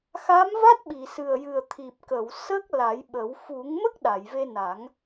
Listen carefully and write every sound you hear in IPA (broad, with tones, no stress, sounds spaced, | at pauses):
x a˧˥ m v a˦˥ t̚ ɓ i˨˩˨ s ɨ˨˩ ə̯ j ɨ˨˩ ə̯ t̪ʰ i˨˩ p̚ k ə˨˩˨ w s ə˦˥ k̚ l a˨˩˦ j ɓ ə˨˩˦ w f u˨˩˦ ŋ m ə˦˥ k̚ ɗ a˨˩˨ j v e˧ n a˨˩˦ ŋ